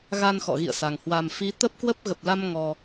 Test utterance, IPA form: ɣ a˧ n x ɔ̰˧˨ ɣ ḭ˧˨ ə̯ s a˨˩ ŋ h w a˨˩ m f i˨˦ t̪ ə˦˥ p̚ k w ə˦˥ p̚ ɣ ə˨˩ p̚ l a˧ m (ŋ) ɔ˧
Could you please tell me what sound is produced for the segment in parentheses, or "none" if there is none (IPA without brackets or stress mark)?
ŋ